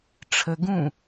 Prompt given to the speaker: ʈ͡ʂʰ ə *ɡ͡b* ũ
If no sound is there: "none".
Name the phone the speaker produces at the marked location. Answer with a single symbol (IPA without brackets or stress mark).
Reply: ɡ